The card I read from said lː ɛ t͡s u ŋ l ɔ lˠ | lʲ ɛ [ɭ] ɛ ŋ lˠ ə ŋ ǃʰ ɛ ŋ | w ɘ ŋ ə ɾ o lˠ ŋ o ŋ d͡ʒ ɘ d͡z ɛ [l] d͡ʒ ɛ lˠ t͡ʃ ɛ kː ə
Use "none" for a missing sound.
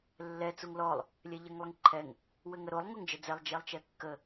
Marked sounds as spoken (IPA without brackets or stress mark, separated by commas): ʎ, lˠ